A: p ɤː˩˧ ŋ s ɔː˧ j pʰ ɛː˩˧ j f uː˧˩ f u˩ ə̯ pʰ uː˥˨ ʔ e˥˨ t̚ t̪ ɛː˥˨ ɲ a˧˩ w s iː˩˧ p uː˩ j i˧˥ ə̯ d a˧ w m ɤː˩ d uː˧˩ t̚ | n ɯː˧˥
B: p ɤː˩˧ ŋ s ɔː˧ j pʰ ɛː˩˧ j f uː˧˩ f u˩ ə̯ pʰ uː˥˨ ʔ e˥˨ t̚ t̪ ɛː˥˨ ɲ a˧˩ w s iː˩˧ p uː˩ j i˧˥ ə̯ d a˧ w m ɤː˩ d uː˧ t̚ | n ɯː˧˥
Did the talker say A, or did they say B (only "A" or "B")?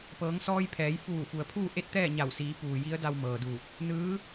A